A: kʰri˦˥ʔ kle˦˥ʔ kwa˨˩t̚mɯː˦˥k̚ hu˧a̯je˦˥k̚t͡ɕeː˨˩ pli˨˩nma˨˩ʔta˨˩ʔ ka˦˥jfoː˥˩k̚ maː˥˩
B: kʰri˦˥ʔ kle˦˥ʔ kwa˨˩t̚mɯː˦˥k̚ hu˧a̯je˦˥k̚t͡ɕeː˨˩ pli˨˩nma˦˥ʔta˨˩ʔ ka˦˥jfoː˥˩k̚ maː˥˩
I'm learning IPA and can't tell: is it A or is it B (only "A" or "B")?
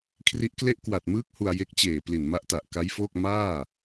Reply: B